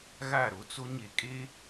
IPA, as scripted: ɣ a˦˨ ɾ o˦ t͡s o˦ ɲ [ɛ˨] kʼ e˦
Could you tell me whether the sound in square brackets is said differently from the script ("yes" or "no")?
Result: yes